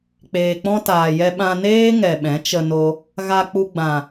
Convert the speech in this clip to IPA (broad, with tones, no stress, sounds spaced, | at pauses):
k͡p eː˨ k͡p ɔ̃˧ t aː˨ j ɛ˧ ɓ ã˧ n eː˦ ŋ ɛ˨ ɓ ɛ̃˨˦ t͡ʃ ə˧ n o˧ | ɣ a˧ k͡p u˧ ɡ͡b ã˨